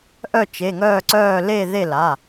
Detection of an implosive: absent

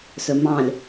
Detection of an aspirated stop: absent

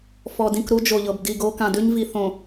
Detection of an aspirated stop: absent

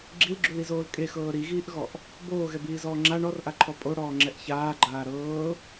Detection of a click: present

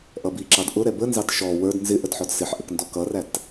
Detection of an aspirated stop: absent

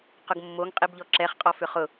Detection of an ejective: present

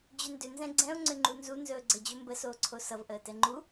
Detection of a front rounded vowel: present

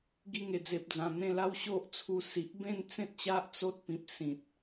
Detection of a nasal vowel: present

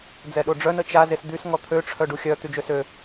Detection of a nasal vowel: absent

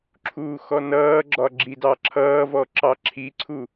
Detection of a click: present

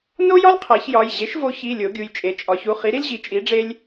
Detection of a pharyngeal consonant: absent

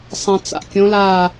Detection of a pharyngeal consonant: absent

